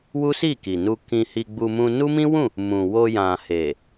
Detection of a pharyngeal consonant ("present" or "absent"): absent